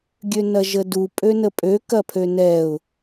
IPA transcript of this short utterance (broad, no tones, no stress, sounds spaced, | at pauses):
ɡʲ ø n ɐ ʒ ə d u pʼ ø n ə pʼ ø k ɐ pʰ ø n ɛ ʊ̯